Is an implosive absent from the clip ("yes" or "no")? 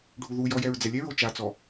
yes